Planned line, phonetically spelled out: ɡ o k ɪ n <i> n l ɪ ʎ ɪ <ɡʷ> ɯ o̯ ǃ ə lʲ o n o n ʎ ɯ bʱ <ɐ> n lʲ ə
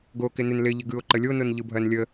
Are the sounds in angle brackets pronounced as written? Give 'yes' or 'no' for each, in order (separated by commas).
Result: no, no, yes